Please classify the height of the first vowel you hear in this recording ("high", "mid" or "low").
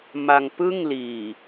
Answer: low